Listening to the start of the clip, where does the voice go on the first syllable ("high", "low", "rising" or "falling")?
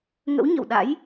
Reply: rising